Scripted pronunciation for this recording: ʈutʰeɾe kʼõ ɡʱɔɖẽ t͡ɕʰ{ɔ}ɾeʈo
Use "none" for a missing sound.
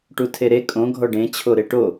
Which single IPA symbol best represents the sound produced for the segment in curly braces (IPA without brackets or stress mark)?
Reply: o